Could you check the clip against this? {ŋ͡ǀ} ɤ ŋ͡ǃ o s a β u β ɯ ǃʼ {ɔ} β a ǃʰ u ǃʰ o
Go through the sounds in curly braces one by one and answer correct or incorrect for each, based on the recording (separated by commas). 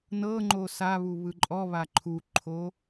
incorrect, correct